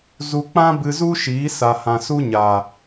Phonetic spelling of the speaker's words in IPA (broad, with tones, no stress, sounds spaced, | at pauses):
z u˧ k͡p ã˦ b ɨ˧ z u˦ ʃ iː˨˦ s a˨ h ã˨ s u˦ ɲ a˨